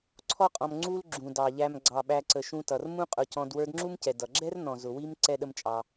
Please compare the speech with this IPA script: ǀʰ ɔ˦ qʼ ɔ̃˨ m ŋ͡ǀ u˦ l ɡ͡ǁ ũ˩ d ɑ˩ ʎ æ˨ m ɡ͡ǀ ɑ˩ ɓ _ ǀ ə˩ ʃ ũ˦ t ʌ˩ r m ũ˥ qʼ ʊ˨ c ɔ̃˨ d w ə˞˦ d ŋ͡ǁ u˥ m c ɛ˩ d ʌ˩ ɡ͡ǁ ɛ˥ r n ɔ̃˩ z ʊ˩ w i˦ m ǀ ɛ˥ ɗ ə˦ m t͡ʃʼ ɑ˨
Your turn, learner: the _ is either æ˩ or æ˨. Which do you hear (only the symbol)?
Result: æ˨